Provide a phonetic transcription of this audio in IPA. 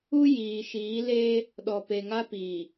u˦ j iː˨ ʃ iː˨˦ l eː˦ | ɗ ɔ˨ p e˨ ŋ a˦ p iː˨

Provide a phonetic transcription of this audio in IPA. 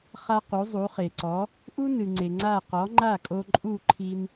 χ a˥ q u˩˥ zˤ u˩˥ χ e˩ ǀ ɔ˩˥ | ʔ u˥ n ɨ˩ ŋ͡ǀ e˩ ŋ͡ǀ a˥˩ q ɔ˩˥ ŋ͡ǃ a˥˩ kʼ o˧ ǃʼ u˥˩ ǃʰ i˧ n

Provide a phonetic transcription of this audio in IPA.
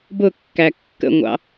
b ʊ kː æ kː ə̰ ŋʷ ɑ̰

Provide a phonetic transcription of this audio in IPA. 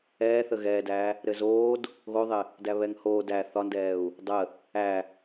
ɛː θ ə ɣ ɛː d æː | ɾ ɘ z oː d | ɣ o ðˤ ɪ | d æ β ɛ ŋ h oː d æ θ ɒ n d ɛː u̯ | dˤ ə | æ

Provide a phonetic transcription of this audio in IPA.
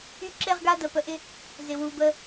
y˦ ǁ e˦ ʁ ɡ a˦ d ə˨ p ə˨ ʔ ɪ˦ | z ɪ˨ w u˨ b ə˦

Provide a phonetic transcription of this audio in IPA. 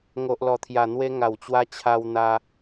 ŋ o˨ ʔ l ɔ˨˩ t̪ʰ j a˨˩ n̪ w e˧ ŋ a˨˩ w t͡ɕ w a˧ t͡ɕʰ a˧ w n̪ a˧

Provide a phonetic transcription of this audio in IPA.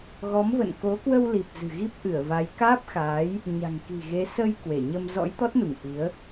ɣ ɔ˨˦ m v ə̰˧˨ n k o˨˦ k w ə˧ w l i˨˩ p̚ z ɨ̤˨˩ ɣ i˦˥ p̚ ʔ ɨ˧˩ ə̯ v a˨˦ j k aː˦˥ p̚ x aː˨˦ j | ɲ a̤˨˩ ŋ k i̤˨˩ ɣ e˨˦ s ə˧ j k w e˧˩ ɲ ə˧ m z ɔ̰˧˥ j t̪ ɔ˦˥ t̚ n u˧˩ ŋ ʔ i˨˦ ə̯

